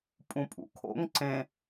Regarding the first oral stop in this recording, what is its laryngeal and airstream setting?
ejective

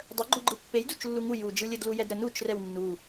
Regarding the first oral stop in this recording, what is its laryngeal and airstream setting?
plain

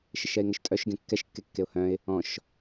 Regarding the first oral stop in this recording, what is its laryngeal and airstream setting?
ejective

